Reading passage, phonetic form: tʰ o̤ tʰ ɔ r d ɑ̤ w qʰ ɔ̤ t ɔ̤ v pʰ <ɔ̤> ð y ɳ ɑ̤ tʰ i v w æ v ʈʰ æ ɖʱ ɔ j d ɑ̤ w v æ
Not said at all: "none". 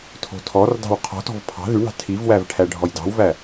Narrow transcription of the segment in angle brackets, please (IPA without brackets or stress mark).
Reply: ɑ̤